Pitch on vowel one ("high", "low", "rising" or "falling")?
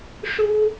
high